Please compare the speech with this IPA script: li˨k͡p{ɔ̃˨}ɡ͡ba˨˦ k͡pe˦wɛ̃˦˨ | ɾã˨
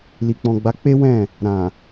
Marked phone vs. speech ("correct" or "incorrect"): correct